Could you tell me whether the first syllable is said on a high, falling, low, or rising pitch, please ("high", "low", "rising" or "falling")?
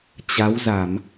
rising